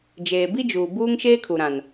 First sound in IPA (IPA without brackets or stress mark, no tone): d͡ʒ